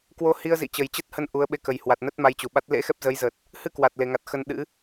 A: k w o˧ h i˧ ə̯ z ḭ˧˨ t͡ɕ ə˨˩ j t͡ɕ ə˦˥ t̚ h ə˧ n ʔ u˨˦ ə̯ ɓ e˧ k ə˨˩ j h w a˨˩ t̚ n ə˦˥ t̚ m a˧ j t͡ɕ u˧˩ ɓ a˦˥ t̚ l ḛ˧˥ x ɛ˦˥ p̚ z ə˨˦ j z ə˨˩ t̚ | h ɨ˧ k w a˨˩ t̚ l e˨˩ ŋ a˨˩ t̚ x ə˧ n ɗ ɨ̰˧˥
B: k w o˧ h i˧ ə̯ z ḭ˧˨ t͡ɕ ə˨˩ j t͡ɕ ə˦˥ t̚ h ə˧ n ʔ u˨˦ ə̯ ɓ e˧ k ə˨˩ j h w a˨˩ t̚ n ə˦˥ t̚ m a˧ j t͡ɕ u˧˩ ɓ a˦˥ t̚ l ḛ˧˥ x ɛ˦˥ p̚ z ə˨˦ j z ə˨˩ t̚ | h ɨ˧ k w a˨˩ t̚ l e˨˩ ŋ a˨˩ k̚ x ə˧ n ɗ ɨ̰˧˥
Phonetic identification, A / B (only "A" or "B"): A